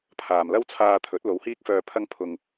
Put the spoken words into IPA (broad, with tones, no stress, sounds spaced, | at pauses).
pʰ aː˨ m l ɐ˥ w t͡sʰ aː˧ t̪ʰ ɵ˨˥ t̚ l o˨˧ w h iː˥ k̚ f œː˧ pʰ ɐ˧ ŋ pʰ ʊ˨ ŋ